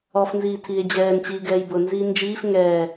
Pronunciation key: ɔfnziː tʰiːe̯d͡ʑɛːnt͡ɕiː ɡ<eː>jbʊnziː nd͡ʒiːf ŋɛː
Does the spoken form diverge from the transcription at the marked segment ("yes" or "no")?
yes